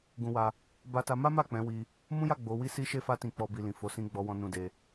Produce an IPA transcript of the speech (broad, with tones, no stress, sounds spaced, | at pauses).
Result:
ɡ ũ˧ w a˧ | b a˧ t a˧ m a˦ m a˦˨ k͡p ɛ̃˨˦ w i˧ | m ũ˦ j a˦˨ ɡ͡b o˨˦ w i˦ s i˦ ʃ e˦ f a˦ t ĩ˧ k͡p ɔ˧ b i˨ l ĩ˨ f o˨˦ s ĩ˦ ɡ͡b ɔ˦ w ɔ̃˦ n ũ˧ d e˧